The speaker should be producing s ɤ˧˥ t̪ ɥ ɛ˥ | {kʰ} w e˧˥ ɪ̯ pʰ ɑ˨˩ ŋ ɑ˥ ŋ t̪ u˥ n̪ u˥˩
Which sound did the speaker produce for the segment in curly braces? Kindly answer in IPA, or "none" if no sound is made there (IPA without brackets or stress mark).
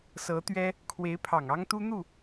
kʰ